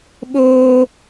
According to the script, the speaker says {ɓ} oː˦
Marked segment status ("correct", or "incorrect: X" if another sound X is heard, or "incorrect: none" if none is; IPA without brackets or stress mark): correct